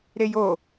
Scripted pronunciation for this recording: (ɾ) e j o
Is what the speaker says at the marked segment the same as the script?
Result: yes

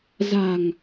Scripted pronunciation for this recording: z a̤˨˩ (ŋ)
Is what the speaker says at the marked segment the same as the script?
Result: yes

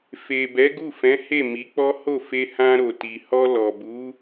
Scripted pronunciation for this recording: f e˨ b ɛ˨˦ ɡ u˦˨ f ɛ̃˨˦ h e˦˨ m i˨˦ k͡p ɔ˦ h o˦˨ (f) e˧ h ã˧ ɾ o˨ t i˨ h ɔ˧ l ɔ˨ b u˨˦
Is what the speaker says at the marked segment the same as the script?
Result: yes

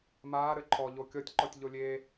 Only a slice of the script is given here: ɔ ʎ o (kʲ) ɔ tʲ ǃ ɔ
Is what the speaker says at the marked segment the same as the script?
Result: yes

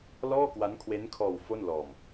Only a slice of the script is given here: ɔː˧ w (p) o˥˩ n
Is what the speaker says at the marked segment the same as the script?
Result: no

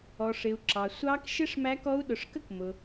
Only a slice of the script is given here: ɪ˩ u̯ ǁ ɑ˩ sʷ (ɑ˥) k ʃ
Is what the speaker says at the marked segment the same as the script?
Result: no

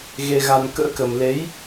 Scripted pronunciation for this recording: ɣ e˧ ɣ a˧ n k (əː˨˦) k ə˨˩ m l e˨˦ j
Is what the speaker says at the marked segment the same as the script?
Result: no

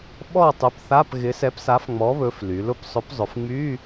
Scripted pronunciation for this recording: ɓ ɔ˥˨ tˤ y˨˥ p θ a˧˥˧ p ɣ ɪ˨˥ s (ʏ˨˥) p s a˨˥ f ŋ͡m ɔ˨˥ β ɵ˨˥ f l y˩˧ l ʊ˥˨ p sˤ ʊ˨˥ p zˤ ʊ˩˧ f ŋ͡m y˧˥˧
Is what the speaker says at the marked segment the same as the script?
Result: no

